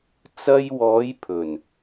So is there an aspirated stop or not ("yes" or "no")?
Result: yes